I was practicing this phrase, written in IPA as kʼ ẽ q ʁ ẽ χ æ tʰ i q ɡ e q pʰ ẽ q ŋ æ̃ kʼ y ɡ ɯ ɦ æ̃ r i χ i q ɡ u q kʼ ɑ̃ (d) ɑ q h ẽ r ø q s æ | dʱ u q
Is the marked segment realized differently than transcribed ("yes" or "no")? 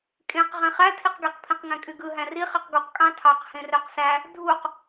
yes